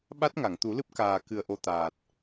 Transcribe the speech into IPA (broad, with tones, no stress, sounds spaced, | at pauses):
ɓ a˦˥ t̚ ŋ a˨˩˨ ŋ t̪ u˨˩˦ l ɨ˦˥ p̚ k aː˨˩ k ɨ˨˩ ə̯ ʔ o˨˩ t̪ aː˨˩ t̚